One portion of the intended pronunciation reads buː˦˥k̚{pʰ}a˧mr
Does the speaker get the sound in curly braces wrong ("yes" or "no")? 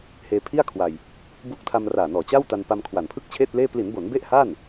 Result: yes